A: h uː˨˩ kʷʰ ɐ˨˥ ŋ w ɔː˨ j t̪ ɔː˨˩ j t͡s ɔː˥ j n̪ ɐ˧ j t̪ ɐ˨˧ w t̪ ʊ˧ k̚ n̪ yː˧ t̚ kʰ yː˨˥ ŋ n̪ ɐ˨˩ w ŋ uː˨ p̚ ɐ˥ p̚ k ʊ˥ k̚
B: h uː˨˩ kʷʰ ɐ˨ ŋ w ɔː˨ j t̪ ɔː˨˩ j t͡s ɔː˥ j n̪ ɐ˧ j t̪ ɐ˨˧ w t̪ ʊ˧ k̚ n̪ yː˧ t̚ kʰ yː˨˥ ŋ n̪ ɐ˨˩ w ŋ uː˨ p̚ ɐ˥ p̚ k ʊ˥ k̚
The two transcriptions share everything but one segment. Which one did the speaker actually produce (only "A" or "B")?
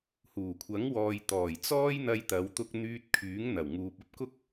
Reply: A